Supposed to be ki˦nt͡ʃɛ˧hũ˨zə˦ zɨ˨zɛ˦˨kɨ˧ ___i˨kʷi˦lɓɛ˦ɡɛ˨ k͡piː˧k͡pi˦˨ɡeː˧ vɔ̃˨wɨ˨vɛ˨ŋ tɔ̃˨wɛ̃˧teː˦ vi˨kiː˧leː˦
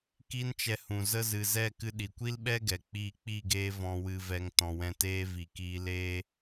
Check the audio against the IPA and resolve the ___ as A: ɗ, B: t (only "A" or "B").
A